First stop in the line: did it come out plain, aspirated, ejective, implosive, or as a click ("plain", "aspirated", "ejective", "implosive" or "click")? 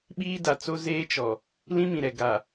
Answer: implosive